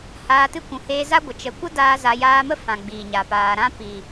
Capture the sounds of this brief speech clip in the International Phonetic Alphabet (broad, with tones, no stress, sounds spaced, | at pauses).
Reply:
h aː˧ t ɨ˦ kʷ ũ˨ h eː˧ z a˦ ɡʷ ə˨ t͡ʃ ə˨ kʷ ə˦ d aː˦ z a˧ j aː˧ m ə˦ f ã˧ ɡ͡b iː˨ ɲ a˨ p aː˧ ɾ ã˦ p i˨